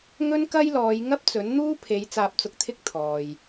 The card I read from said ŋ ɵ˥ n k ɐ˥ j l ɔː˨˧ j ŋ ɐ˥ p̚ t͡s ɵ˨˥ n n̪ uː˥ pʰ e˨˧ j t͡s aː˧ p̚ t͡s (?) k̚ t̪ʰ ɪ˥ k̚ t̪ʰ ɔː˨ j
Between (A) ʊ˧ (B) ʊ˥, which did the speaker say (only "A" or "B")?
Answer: A